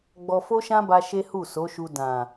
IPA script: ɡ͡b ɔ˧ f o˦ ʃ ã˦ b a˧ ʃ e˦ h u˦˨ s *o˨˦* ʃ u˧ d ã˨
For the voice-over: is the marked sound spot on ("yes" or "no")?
yes